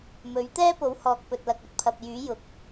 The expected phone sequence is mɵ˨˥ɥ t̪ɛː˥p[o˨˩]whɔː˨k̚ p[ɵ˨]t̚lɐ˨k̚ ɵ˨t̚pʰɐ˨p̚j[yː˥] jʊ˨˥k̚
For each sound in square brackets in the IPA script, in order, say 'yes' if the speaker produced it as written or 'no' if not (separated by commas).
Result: no, yes, no